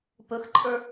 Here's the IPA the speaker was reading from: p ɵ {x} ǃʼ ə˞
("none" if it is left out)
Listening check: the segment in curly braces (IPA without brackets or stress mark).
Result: x